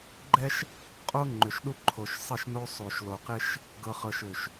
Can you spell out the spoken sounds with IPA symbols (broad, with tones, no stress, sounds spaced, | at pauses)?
ɡ͡ǃ ɛ˦ ʃ | qʼ o˦ ŋ͡ǃ ʏ˨ ʃ ɗ u˦ ǃʰ o˨ ʃ sˤ ɪ˦˨ ʃ n o˦ sˤ o˨ ʃ l o˨ q ɪ˦ ʃ | ɡ ɤ˨ χ ɤ˨ ʃ ʏ˨ ʃ